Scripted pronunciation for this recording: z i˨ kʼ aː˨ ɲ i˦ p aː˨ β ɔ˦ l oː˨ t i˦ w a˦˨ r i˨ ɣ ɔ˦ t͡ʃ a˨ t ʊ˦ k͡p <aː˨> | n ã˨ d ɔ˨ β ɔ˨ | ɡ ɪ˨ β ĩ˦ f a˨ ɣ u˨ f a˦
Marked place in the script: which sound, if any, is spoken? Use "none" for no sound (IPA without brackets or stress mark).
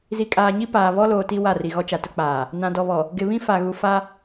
aː˨